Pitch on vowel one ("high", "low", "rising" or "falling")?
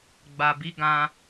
low